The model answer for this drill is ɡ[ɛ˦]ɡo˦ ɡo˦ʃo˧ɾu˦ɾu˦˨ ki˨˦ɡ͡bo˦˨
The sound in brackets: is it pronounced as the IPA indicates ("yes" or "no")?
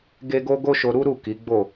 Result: no